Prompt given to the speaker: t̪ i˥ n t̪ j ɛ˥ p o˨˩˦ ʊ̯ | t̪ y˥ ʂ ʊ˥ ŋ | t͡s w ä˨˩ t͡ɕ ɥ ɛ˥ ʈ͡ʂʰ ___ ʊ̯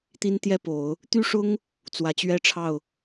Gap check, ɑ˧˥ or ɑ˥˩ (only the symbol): ɑ˥˩